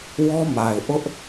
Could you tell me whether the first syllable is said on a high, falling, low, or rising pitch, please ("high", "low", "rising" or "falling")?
high